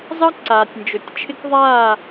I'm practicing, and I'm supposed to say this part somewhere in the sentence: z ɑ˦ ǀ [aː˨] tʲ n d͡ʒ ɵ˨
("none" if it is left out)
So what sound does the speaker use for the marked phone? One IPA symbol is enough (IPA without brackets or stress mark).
aː˨